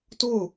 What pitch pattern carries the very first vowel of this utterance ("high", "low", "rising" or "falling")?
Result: falling